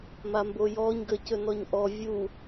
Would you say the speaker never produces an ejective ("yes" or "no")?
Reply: yes